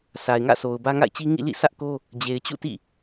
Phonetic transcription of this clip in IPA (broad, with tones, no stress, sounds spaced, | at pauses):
s a˨ ɪ̯ ŋ ä̰˦˨ sʰ o˨ ʊ̯ b ä˦ ŋ a̰˦˨ ɪ̯ t͡ɕ i˦ ŋ ḭ˦˨ l ḭ˦˨ sʰ ä˦ ʔ k o˦ | d͡ʑ e˨ ɪ̯ t͡ɕ ṵ˦˨ t ḭ˦˨